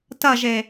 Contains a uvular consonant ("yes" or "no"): no